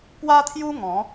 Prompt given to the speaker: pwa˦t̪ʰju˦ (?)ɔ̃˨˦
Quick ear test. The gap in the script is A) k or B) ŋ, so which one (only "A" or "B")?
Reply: B